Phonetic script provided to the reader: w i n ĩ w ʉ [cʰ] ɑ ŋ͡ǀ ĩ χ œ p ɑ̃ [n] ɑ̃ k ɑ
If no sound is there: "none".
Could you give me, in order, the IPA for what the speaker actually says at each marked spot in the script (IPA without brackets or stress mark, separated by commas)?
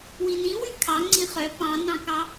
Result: kʰ, n